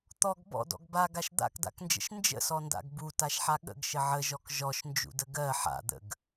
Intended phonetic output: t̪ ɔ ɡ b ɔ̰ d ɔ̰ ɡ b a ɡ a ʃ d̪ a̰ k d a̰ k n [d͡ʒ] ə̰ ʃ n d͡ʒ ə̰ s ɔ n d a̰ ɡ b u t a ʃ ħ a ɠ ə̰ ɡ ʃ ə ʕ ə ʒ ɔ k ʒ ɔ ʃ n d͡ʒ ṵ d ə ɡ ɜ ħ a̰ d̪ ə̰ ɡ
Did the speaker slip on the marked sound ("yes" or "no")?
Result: no